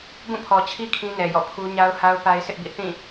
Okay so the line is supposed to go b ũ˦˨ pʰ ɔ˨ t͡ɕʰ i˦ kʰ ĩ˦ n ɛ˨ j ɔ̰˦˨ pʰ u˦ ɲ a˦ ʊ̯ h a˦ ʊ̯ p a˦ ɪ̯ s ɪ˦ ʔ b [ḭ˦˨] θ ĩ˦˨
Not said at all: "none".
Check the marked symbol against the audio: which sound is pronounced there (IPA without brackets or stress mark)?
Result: ḭ˦˨